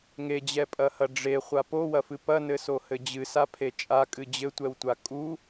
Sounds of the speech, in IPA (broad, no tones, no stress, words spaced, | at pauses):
ŋed͡ʑɛpʼɐhɐ ɖ͡ʐeχʷa powɐfɨ pɐnɘsohɘ d͡ʑɨsapʰe t͡ʃʼakʼɨ d͡ʑɘtʷɛwtʷa kʼu